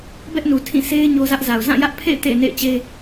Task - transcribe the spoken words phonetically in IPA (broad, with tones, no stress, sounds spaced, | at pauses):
b ɛ˦ ʔ n u˨ tʰ ĩ˦˨ sʰ e˦ ɪ̯ ɲ o˦ z ä˦ ʔ z a˨ ʊ̯ z ã˦˨ j ä˦ ʔ pʰ ḛ˦˨ ɪ̯ t ḛ˦˨ ɪ̯ n ḛ˦˨ ɪ̯ t͡ɕ e˦